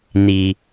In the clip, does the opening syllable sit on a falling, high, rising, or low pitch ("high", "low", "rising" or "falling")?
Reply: low